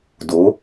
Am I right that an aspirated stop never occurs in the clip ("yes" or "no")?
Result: yes